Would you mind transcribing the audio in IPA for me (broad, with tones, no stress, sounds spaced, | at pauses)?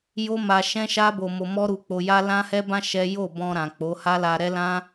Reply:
j o˦ m a˧ ʃ ɛ̃˦ ʃ a˦ b o˧ m o˧ m ɔ˦ ɾ u˧ k͡p o˧ j a˦ l ã˦ h ɛ˦ b ã˦ ʃ ɛ˦ j o˦˨ b ɔ̃˧ ɾ ã˨ k͡p o˨˦ h a˦ l a˧ ɾ ɛ˦ l ã˦